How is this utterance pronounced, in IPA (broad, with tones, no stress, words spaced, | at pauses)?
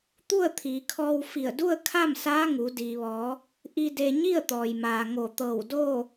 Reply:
t̪u˥˨ə̯t̪ʰiː˩˧kʰɔː˧w fi˧˩ə̯du˥˨ə̯kʰa˥˨m saː˧˥ ŋu˩˧diː˩ʋɔː˩˧ | ʔi˧ de˧ ɲi˥˨ə̯t̪ɔː˩jmaː˩ ŋo˧˩t̪ɤː˧˩wdoː˥˨